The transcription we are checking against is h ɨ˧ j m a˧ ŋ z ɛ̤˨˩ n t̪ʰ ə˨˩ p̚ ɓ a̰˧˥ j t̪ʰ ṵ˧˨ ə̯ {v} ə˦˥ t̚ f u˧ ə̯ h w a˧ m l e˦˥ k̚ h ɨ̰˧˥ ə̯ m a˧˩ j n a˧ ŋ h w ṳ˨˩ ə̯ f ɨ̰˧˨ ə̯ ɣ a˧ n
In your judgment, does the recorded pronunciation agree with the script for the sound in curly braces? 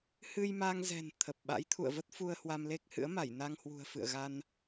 yes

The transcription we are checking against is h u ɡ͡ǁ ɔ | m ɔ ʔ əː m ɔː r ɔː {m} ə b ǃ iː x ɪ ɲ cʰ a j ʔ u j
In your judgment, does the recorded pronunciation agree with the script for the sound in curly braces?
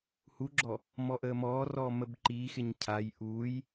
yes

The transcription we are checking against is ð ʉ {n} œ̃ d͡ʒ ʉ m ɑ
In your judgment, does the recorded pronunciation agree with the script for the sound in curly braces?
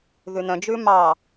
yes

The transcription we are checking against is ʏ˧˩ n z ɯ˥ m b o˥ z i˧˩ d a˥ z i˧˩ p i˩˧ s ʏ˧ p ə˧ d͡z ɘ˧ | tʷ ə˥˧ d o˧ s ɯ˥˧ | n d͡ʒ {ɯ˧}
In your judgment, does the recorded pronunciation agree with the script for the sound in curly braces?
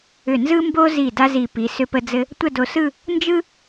no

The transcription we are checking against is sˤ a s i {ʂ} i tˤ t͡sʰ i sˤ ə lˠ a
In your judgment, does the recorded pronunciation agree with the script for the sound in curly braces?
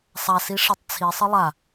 yes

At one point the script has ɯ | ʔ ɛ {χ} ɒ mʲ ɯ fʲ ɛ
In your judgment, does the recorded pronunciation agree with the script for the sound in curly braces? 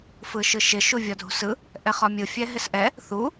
yes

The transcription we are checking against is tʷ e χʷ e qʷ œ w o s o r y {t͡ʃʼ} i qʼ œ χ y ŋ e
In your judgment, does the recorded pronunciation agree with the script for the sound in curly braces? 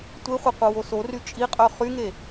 yes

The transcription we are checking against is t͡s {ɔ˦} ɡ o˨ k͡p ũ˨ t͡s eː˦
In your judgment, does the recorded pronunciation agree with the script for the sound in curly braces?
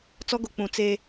yes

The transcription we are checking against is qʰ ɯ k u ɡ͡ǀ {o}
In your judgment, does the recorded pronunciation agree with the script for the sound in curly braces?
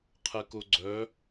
no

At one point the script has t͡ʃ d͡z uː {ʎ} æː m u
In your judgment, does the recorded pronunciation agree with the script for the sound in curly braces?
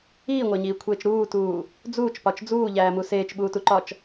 yes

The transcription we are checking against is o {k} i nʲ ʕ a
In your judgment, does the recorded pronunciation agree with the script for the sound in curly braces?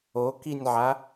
yes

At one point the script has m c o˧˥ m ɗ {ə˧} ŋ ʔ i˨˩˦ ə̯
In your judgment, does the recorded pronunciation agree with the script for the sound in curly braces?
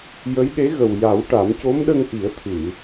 yes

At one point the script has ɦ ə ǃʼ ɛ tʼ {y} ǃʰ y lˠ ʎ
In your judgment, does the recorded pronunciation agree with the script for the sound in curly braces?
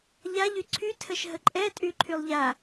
yes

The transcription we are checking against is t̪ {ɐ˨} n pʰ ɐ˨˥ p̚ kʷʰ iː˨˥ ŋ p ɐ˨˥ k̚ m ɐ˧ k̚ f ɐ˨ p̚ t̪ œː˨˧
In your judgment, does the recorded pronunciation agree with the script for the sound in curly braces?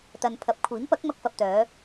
yes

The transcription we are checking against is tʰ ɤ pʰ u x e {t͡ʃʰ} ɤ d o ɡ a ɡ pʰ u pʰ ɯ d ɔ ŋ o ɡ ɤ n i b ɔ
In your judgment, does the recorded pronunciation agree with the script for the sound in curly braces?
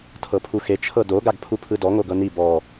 yes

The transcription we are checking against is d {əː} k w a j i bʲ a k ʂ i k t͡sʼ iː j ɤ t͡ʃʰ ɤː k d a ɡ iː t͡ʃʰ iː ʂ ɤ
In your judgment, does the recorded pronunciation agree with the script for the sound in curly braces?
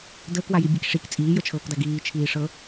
yes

